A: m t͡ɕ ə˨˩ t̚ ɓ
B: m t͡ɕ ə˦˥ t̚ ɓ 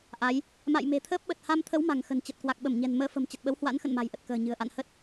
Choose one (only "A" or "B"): A